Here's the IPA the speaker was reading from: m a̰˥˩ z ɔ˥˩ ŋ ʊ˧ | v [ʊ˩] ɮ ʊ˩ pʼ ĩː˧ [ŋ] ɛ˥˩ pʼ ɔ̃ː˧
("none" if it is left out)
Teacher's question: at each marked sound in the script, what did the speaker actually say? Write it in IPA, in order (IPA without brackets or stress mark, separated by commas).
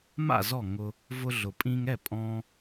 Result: ʊ˧, ŋ